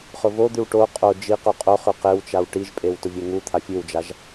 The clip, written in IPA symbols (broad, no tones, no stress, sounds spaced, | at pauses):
χ ʊ v o d̪ ʉ w ʈ o qʼ o d͡ʒ i q u qʼ o χ ʉ q e w t͡ʃ a w ʈ i ʒ pʼ e w t ʊ vʲ e ŋ u t̪ʰ a fʲ ʉ w d͡ʒ a ʒ